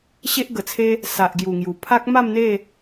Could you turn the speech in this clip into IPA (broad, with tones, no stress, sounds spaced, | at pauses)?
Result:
ɕ e˦ ʔ ɡ ə˨˩ t͡sʰ e˦ | s a˨ ʔ ɡ j u˨˩ ŋ j u˨˩ pʰ a˦ k̚ m a˥˧ m n̪ e˥˧